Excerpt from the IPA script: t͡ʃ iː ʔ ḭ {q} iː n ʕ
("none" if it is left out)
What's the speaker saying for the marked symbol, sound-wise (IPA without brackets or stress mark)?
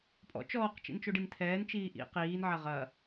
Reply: q